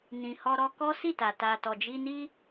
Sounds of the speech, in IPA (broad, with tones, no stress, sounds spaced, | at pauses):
n ĩ˨ h ɔ˧ ɾ ɔ˧ k ɔ˦ s i˦˨ t a˨ t a˨ t ɔ˨ d͡ʒ i˧ n i˦